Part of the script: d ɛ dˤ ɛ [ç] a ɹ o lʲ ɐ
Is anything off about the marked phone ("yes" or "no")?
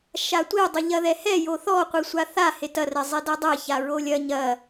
no